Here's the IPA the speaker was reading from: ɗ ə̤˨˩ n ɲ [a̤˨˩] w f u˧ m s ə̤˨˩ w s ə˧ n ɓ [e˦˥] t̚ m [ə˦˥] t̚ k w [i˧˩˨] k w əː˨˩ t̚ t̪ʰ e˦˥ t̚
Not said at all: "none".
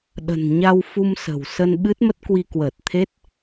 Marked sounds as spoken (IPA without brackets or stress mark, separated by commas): a˧, ɨ˦˥, ə˦˥, i˧